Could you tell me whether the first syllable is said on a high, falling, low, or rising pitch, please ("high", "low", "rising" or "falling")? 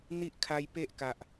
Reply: high